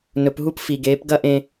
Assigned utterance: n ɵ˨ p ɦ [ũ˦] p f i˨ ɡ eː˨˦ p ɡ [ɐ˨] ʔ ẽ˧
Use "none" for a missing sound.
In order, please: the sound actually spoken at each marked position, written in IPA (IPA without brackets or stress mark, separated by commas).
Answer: u˦, ɐ˦